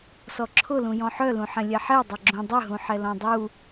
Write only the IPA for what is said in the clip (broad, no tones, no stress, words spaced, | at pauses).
sɔǁʰʊlũ jɔ̃ħœlũħɛ̃ lʲɛħɛ dˤɛɡ͡ǁũ dˤʏɦũ ħɛlɔ̃dˤu